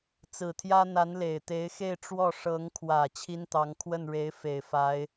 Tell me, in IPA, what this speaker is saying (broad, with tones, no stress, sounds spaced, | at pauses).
t͡s ɹ̩˨˩ t̪ʰ j ä˥ n̪ a˧˥ n l e˨˩ ɪ̯ t̪ e˧˥ ɪ̯ x e˥˧ ɪ̯ ʈ͡ʂ w ɔ˥˩ ʂ ɤ˧˥ ŋ kʰ w ä˨˩ t͡ɕʰ i˥ n t̪ ɑ˧˥ ŋ kʰ w ə˥˩ n ɻ e˧˥ ɪ̯ f e˨˩ ɪ̯ f a˧˥ ɪ̯